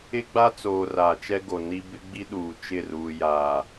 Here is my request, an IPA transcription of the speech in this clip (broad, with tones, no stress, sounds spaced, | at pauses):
ɪ˦ ɡ͡b a˦ t͡s oː˨ r aː˨ t͡ʃ ɛ˦ ɡ o˨ n i˦ b ɪ˦ ɡ͡b i˦ ɗ uː˨ t͡ʃ ɪ˦˨ r uː˨ j aː˨